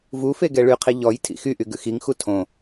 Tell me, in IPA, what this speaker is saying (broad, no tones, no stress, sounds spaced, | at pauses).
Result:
v u f e ɡ ɛ ɭ y qʰ i ʎ ɔ j tʰ ḭ x y ʔ y ɡ ʉ x i ŋ x u tʰ õ